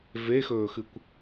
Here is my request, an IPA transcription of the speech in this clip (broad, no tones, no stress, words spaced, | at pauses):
vexɵːxɨkʷ